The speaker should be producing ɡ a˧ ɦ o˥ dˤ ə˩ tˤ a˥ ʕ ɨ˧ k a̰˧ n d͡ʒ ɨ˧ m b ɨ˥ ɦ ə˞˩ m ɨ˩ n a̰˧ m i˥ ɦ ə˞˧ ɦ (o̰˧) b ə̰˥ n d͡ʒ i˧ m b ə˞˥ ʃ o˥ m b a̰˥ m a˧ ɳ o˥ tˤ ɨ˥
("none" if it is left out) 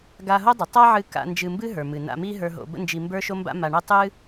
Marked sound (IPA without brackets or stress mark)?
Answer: o̰˧